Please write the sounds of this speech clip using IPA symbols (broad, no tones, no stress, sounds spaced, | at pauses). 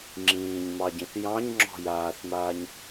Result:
ŋ͡ǁ ĩː ɲ m ɑ ɟ ĩ θ j ɑ̃ ɲ ŋ͡ǁ ɔ̤ j aː θ m aː ɲ